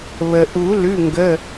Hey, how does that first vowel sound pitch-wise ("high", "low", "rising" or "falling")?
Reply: low